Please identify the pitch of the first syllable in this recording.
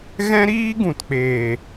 high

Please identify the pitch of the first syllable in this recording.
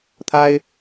high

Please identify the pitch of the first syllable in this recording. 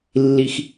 low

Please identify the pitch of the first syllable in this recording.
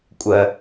low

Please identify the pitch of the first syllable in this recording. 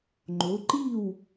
rising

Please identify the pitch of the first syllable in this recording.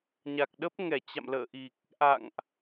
low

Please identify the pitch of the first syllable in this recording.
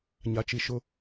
low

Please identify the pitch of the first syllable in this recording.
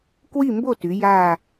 falling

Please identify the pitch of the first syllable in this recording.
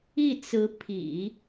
falling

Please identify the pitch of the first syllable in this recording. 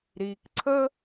low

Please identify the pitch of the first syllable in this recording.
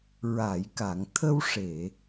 low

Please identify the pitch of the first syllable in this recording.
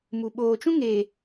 low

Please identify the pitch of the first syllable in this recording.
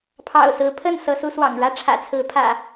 low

